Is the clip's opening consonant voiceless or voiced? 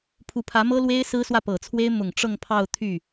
voiceless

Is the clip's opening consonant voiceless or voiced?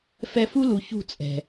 voiceless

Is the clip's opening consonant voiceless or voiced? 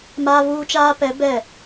voiced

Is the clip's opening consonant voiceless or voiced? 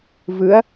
voiced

